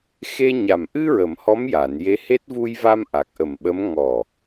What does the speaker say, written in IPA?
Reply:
xe˧ ɲa˨˩m ʔɨ˧ɹə˨˩˨m hɔ˧˥mja˨˩˨nje˧˥he˦˥t̚ vu˧jva˧m ʔa˨˩k̚ʔə˨˩mɓə˧˥m ŋɔ˨˩

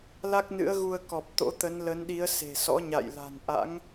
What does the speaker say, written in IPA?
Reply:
la˦˥k̚nɨ̰˧˥ə̯ɣu˧ə̯kɔ˨˩p̚ t̪o̰˧˥t̪ə˨˦nlə˨˦nɗi˨˦ə̯ se̤˨˩sɔ̰˧˥ ɲa̰˧˨jla̤˨˩n ʔa̰˧˥ŋ

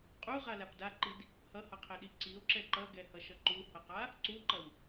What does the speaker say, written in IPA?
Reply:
qʼuʁalap daǃid | hʌhʌqʰeɗi ǀio̯ǁɛ ǃʌɡɛhʌʃʌ ǃuhʌqa | ǀuǃʌw

